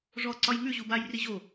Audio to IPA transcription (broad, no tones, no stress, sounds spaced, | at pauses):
ʐ ɔ ǀ ɒ j ŋ ʉ ʑ u b a j r i ʑ o